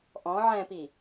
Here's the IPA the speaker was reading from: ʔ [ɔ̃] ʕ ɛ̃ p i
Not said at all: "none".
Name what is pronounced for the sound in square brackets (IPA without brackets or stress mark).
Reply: ɔ̃